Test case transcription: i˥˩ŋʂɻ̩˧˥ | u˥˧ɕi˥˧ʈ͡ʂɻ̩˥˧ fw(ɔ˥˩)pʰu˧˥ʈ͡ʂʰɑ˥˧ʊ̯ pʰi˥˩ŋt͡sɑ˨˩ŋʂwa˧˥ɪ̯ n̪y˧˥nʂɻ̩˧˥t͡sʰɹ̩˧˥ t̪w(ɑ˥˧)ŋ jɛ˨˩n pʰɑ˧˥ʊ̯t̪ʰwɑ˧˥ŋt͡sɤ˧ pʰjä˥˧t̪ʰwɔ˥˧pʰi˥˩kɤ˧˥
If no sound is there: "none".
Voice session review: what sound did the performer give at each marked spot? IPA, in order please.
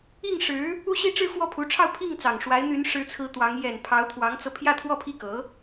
ɔ˥˩, ɑ˧˥

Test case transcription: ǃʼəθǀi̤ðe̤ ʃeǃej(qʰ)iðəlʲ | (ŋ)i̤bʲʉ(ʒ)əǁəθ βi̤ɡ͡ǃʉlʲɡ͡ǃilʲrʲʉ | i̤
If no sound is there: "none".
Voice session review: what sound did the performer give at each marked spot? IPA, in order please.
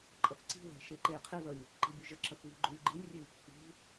qʰ, ǃ, ʒ

